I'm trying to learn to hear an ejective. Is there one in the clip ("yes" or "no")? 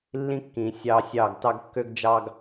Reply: no